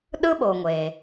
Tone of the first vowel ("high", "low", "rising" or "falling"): high